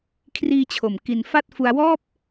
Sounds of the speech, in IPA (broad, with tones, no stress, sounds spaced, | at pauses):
kʰ r iː˧ t͡ɕʰ o˨˩ m k i˧ n f a˥˩ t̚ f u˧ a̯ w ɔː˥˩ p̚